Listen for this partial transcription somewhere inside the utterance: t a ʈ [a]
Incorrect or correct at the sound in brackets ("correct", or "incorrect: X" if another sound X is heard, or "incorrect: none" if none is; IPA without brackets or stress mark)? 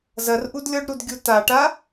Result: correct